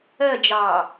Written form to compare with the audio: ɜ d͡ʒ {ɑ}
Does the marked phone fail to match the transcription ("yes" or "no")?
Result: no